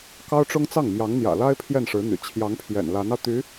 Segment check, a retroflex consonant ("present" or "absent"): present